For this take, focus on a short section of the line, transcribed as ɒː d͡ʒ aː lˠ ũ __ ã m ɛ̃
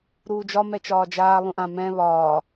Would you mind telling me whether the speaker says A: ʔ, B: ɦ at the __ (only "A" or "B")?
A